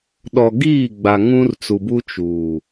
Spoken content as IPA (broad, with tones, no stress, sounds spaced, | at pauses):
ɗ ɔ˨ ɡ iː˦˨ ɡ͡b a˨ ŋ ũ˦ r t͡s u˨ b u˦ t͡ʃ uː˨